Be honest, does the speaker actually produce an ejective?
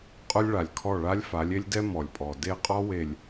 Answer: yes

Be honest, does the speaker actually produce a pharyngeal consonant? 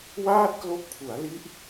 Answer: no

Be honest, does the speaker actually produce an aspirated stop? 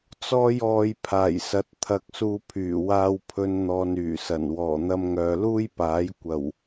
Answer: yes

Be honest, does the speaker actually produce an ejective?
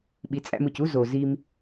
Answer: yes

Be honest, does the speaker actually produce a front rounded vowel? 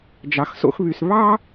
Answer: yes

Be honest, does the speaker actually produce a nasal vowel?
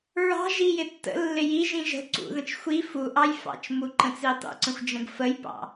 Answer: yes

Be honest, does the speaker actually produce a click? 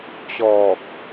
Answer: no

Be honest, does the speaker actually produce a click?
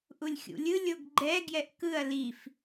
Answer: yes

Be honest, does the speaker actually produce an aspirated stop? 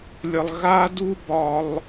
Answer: no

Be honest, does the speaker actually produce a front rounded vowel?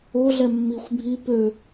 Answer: yes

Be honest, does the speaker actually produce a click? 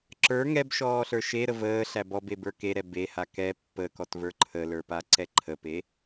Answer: yes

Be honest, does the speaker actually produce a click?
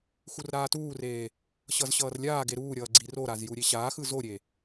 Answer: yes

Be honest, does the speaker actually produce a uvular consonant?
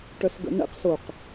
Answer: yes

